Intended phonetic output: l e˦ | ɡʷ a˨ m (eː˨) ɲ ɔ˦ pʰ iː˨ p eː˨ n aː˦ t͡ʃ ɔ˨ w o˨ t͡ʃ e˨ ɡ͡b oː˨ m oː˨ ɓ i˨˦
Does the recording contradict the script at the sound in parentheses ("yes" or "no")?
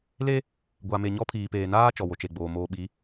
yes